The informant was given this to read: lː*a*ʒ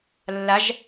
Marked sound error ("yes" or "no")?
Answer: no